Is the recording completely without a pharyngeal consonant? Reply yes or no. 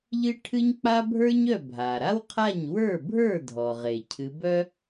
yes